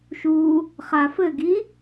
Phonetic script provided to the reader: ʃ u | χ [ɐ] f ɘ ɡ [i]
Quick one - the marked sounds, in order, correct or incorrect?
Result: incorrect: a, correct

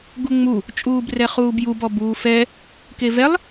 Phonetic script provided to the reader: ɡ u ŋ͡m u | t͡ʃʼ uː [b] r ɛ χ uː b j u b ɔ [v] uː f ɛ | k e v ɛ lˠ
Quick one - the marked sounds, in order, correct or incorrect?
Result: correct, incorrect: b

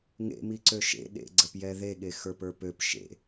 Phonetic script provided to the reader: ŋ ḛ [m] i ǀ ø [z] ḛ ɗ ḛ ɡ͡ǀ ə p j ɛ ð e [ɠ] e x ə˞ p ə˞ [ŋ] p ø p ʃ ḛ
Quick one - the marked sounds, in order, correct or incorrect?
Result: correct, incorrect: ʃ, correct, incorrect: none

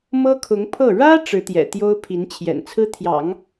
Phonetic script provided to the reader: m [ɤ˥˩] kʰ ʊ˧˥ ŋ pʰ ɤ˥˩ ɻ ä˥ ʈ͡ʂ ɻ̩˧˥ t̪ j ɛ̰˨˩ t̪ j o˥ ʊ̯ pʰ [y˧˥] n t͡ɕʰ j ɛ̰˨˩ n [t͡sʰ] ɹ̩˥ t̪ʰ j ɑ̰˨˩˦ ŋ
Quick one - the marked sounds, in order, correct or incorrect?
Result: incorrect: ɤ˥, incorrect: i˧˥, correct

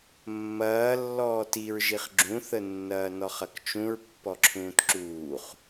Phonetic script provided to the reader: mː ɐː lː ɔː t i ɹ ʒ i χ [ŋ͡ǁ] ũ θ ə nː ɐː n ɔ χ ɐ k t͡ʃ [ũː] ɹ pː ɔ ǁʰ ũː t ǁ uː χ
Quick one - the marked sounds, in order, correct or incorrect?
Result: incorrect: ɡ͡ǁ, incorrect: ũ

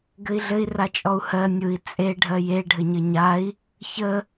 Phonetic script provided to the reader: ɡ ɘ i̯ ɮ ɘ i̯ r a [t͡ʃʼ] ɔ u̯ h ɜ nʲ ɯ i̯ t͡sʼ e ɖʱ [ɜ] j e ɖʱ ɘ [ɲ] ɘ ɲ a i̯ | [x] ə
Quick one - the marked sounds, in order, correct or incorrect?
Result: correct, correct, correct, incorrect: ç

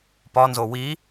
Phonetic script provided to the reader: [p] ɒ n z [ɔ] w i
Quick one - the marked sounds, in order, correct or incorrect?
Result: correct, incorrect: o

